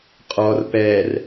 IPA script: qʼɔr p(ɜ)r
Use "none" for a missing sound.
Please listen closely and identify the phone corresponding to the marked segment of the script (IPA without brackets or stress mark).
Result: ɛ